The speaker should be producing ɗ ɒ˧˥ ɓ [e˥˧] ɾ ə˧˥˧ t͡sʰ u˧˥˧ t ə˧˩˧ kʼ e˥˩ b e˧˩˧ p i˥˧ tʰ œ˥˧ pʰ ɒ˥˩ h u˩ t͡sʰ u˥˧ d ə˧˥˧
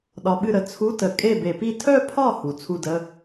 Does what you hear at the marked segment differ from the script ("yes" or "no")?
yes